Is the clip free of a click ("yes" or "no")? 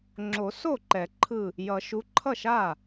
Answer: no